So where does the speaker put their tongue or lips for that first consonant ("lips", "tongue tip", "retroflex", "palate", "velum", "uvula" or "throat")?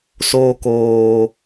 tongue tip